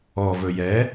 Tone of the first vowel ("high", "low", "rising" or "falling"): low